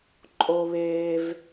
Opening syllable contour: high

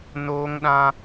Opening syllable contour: high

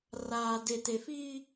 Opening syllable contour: low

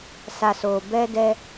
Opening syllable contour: low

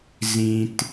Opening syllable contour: low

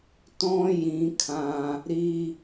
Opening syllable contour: high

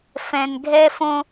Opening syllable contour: low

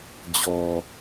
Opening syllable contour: low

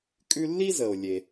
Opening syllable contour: high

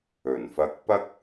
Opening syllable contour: low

